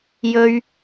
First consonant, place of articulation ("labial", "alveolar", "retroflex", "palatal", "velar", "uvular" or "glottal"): palatal